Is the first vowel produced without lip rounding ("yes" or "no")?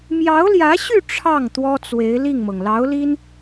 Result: yes